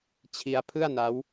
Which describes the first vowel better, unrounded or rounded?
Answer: unrounded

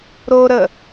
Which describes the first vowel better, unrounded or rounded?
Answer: rounded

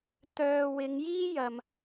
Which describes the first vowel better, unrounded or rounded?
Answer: rounded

